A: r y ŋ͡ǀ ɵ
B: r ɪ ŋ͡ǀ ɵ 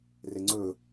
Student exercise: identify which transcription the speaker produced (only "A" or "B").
B